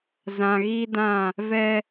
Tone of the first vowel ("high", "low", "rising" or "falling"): low